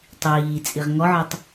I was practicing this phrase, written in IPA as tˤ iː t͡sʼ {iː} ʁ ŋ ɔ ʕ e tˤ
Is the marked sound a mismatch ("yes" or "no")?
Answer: yes